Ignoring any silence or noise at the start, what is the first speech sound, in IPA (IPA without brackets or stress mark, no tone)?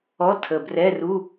ɔ